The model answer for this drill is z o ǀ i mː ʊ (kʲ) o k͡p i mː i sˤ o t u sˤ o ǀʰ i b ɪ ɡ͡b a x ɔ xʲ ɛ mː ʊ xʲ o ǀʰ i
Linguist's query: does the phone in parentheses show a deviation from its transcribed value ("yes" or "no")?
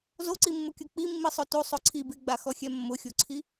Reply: no